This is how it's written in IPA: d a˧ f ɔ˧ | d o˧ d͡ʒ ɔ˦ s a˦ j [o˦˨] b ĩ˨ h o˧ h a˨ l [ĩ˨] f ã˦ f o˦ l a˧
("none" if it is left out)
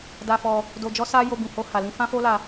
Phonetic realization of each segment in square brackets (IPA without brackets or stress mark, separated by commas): o˧, ĩ˧